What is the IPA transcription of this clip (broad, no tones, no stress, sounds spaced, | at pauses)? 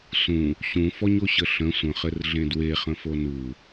s ũ | ɕ ũ f ɔ ɲ o ɕ ə ɬ ə̃ sʷ ə̃ χ ɘ r ɮ ẽ d w e χ ə̃ f o n u